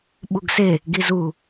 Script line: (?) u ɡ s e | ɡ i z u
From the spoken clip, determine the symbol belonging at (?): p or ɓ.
ɓ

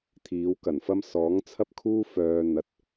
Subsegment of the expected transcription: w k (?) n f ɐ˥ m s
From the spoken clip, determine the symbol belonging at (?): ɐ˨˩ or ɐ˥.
ɐ˨˩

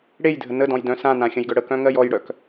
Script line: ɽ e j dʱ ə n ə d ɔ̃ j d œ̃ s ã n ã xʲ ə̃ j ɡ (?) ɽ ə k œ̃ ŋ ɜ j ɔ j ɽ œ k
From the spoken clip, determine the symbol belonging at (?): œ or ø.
œ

